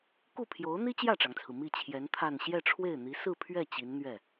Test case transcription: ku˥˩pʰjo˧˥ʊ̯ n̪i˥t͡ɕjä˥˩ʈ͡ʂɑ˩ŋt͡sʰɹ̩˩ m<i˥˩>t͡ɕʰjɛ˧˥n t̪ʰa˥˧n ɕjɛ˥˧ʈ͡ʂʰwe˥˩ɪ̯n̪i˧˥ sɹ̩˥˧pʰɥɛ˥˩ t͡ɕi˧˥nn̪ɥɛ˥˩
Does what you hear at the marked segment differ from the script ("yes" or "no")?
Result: no